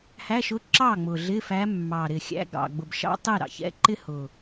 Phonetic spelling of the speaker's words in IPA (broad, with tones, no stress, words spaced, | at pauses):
hæ˧˥˧ʃʊ˥ ǁɑ˥˩ŋ͡mʊ˨˩ ɮɪ˧˥˧fæ˧˥ mːɑ˨˩ɾɪ˨˩xʲæ̰˧˥˧ɡ ɑ̰˨˩ɡ͡bʊ˨˩bʃɑ̰˥ tˤi˥˩ɾɑ̰˨˩çɛ̰˧˥˧ ǃɪ˥hʊ˨˩